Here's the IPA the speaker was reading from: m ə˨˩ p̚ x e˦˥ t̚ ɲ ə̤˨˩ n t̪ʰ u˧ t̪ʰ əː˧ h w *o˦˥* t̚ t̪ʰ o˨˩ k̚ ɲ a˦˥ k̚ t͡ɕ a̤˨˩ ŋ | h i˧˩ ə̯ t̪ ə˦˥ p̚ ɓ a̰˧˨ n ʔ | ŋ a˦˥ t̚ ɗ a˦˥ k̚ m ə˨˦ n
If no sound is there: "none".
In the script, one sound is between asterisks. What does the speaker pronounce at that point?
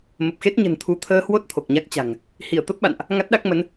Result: o˦˥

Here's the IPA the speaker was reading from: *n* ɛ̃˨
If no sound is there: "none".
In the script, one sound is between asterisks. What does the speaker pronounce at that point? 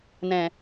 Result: n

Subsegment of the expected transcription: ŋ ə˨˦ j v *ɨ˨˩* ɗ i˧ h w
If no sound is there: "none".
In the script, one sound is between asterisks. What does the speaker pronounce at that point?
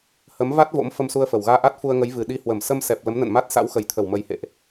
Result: ɨ˨˩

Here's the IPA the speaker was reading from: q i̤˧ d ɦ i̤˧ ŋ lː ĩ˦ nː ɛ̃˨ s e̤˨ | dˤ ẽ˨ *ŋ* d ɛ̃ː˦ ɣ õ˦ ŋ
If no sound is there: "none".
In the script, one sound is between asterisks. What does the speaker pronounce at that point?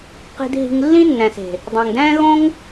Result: ŋ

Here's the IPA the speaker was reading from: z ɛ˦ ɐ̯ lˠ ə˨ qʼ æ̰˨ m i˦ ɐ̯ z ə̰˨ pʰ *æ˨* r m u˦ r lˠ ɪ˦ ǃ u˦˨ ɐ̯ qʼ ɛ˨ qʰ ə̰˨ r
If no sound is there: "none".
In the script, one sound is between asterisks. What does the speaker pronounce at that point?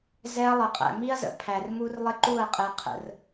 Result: æ˨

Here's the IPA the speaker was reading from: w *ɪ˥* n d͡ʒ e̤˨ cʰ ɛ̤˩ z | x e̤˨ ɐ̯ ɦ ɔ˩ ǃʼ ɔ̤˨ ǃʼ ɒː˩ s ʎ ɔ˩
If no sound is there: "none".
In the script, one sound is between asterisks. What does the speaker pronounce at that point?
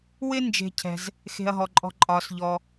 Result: ɪ˥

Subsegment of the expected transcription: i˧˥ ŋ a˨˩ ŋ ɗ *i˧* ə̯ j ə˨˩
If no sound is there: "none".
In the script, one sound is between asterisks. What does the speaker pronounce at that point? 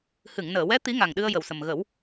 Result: ɨ˧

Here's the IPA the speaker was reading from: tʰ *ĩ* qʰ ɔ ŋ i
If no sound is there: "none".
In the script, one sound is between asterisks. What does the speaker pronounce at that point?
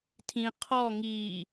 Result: ĩ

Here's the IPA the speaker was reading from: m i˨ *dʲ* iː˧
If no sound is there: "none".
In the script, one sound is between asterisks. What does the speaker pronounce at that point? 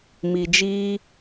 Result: d͡ʒ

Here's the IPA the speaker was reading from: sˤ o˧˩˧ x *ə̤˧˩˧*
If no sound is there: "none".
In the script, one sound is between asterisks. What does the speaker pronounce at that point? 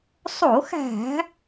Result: æ̤˧˩˧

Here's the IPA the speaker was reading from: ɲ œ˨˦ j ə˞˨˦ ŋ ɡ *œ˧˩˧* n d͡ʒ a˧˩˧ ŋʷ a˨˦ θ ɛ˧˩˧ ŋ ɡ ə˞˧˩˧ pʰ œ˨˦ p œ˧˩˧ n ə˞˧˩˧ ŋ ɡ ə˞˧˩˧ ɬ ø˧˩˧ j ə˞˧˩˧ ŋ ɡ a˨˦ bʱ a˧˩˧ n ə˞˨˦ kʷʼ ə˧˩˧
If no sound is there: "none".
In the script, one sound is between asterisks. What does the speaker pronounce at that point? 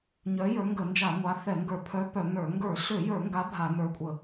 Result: ə˧˩˧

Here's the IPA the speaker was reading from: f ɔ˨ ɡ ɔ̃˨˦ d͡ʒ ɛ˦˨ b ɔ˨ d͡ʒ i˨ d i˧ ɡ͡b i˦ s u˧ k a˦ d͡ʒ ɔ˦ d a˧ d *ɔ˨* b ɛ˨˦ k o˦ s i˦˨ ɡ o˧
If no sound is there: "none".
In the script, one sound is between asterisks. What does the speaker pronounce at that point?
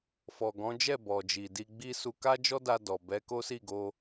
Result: ɔ˨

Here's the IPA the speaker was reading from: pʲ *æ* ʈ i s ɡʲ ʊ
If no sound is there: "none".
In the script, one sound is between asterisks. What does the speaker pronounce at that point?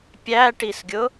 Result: æ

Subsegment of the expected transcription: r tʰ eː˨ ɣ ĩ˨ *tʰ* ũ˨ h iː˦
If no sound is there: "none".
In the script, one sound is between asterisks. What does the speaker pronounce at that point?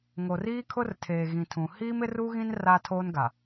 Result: tʰ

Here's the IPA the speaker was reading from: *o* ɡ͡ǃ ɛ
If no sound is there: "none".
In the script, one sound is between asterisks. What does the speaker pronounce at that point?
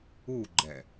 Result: u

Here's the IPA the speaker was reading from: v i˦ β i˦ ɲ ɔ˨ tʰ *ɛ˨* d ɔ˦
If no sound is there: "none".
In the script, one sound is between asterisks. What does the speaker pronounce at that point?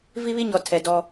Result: ɛ˨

